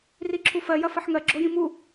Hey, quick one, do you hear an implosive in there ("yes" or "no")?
no